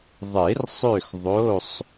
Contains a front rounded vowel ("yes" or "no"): yes